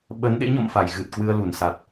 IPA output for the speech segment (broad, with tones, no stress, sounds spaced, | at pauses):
ɓ ə˨˦ n ɗ ḛ˧˥ ɲ ɔ̰˧˨ m f a˧˩ j ɣ ɨ˨˩ t̚ k w ɨ˧ ə̯ l u˧˩ n s a˨˩ t̚